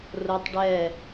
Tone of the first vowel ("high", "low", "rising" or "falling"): high